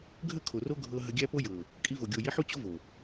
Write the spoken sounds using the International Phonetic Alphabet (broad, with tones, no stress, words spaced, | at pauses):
ɡʱə˦˨kʰo˨ ro˦ɡʱɤ˧ ɦə˧ɡʲæ˦po˦ jɤ˨ | kʼi˧vo˨ ɡʲo˨ji˨˦ħ u˦t͡ɕo˦vo˨